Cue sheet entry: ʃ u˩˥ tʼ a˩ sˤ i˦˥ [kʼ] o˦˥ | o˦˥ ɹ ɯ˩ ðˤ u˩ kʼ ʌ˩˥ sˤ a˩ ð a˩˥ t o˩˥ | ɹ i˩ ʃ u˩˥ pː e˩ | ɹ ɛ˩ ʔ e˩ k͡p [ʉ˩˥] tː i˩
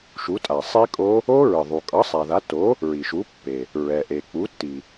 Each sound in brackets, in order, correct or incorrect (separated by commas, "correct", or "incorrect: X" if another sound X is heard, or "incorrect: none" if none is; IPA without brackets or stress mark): correct, incorrect: u˩˥